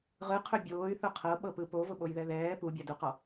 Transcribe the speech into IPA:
ʁ ɯ qʰ ɵ bʲ oː y̯ θ ʊ qʰ ɤ ɓ ɤ p ɯ p o v ʊ ɓ o j ð ɛ ð ɛː p u bʲ a d u q ɔ

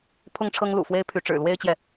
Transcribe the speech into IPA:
pʰ ʊ˥˩ ŋ ʈ͡ʂʰ ɤ˥ ŋ l ṵ˨˩ f w e˥ ɪ̯ pʰ y˧˥ ʈ͡ʂ ɻ̩˨˩ l w e˥ ɪ̯ t͡ɕ j ɛ˨

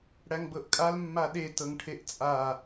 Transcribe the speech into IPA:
ɽ æ ŋ b ɤ ʔ kʼ a l mː a ɗ e t ɤ ŋ ʈʰ e ʔ t͡sʼ a

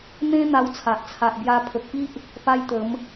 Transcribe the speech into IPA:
n̪ ẽ˦ n̪ a˧ w t͡sʰ a˨ ʔ t͡sʰ a˨ ʔ b j a˧ pʰ ə˨ k̚ p i˦ ʔ | p a˦ j t̪ ə˨˦ m

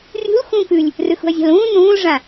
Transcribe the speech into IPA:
rʲ ṳ l x ũː k ʉ lʲ | r ʉ x ṳ ɐ̯ zʲ a̤ l ũː n ũː l ʐ ã

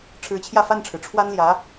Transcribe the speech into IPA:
ʈ͡ʂʰ ɻ̩˧˥ t͡ɕʰ j ä˥˧ f a˥˩ n ʈ͡ʂʰ ɻ̩˩ ʈ͡ʂʰ w a˥ n l j ä˧˥

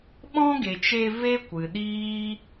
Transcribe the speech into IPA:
ɓ ɔ̃˦ ɡ e˨ t͡ʃ e˧ v e˦ kʷ ɨ˨ ɗ iː˦

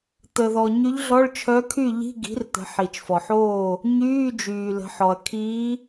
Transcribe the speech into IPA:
t̪ ə˩ ð ɔ˩ ɲ y˧˥ ʎ ɮ ɔ˧˥˧ ɭ t͡ʃʰ œ˧˥ kʰ y˥˨ ʎ i̤˧˥˧ ɡ i̤˩˥ r t̪ ə̤˩˧ ħ i˩ t͡ʃ f ɔ˩ ħ oː˥˨ | ɲ yː˧˥˧ d͡ʒ yː˩ l ə̤˩˧ ħ ɔ˩ ɐ̯ kʰ iː˧˥

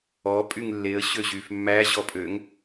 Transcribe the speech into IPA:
ɔ pʼ y ŋ lː e ə̯ ɕ ø ʑ yː f mː æ ʑ ɔ pʼ ø ŋ

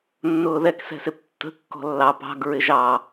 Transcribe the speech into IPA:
nː ʊː ð ɛ k s ɛ̤ s ɪ p tː ə̤ kː ɔ̤ lː ɑ p ɑ̤ ɡ ɹ ɪ ʒ ɑ

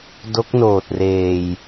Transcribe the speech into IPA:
d o˦˥ k̚ n oː˨˩ t̚ r eː˨˩ j

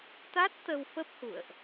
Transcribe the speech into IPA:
t̪ a˦˥ t̚ t̪ ə˧ w f ə˦˥ p̚ h ṵ˧˨ ə̯ ʔ

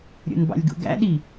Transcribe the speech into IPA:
ɾʲ o̰ n b ɑ̰ lʲ ɡ ṵ ɡ æ̰ ɗ i

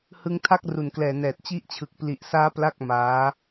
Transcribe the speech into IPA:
h ɯ˧ ŋ tʰ a˥˩ k̚ r u˨˩ n k l ɛː˨˩ n ɛː˨˩ t̚ t͡ɕ i˦˥ ʔ t͡ɕʰ ɯ˨˩ k̚ p l i˨˩ ʔ s aː˦˥ p l a˥˩ k̚ m aː˦˥

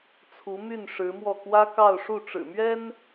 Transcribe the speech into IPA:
t͡sʰ u˧˥ m y˥˩ n ʂ ɻ̩˧˥ m w ɔ˥˩ k w ä˥ k ɑ˥˧ ʊ̯ ʂ u˥˩ ʈ͡ʂ ɻ̩˨˩ m ɥ ɛ˥ n

